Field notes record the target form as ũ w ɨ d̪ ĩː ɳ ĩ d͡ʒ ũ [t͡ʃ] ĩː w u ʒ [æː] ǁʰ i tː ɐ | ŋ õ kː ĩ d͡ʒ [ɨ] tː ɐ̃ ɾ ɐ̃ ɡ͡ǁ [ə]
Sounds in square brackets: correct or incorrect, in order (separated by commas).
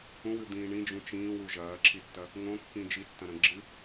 correct, incorrect, incorrect, incorrect